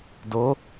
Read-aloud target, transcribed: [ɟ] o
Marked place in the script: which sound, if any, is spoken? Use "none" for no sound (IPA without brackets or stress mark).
d